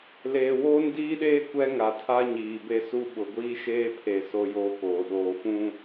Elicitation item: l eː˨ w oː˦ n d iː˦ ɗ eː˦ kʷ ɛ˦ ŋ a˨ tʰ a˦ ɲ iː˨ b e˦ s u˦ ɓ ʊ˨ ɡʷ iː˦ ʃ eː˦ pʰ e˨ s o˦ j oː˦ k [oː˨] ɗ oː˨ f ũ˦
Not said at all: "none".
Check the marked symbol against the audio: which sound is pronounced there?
oː˨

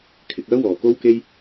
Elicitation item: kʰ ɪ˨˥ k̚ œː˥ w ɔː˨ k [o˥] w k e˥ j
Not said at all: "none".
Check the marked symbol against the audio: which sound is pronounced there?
o˥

